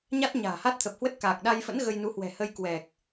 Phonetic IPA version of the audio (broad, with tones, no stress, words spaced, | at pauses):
ɲa˦˥t̚ ɲa̤ː˨˩ha˦˥t̚t̪ʰə˨˩p̚ hwə˦˥t̚ kaː˨˩k̚ɗa˧jfə̰˧˥n ɣə˧jnu˨˦hwɛ̤˨˩ hə˧j kwɛ˨˩k̚